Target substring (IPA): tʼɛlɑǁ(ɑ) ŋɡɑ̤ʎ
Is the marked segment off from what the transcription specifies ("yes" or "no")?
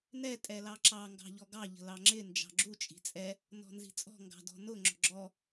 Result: no